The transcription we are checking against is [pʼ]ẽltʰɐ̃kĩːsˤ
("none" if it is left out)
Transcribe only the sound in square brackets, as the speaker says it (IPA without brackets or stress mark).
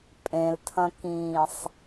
pʼ